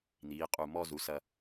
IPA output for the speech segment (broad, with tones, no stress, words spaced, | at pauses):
n̪iː˩˧qʼu˧˩ mɔː˥˧zu˩˧sɐ˧